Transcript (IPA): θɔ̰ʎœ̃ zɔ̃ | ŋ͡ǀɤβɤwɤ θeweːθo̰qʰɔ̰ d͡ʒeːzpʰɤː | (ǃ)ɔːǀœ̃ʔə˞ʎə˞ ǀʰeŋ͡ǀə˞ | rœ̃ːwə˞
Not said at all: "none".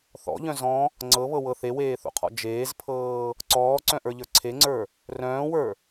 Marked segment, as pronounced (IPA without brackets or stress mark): ǀ